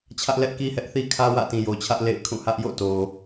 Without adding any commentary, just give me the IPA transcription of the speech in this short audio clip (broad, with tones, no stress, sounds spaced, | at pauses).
t͡ɕʰ ä˦ ʔ l ɛ˦ ʔ k i˦ h ɛ˦ ʔ θ i˦ kʰ ä˦ w ä̰˦˨ t ĩ˨ j o˨ t͡ɕʰ ä˦ ʔ l ḛ˦˨ ɪ̯ kʰ ũ˦˨ h ä˦ ʔ j o̰˦˨ t o˨